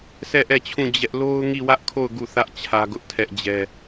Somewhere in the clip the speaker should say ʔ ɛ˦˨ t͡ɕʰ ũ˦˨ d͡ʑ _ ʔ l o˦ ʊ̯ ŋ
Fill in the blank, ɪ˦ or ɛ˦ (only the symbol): ɛ˦